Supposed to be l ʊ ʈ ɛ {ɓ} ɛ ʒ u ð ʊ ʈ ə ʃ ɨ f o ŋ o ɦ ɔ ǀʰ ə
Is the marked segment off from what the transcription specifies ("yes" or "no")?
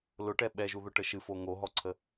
no